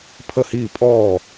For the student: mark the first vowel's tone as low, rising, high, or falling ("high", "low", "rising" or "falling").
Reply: falling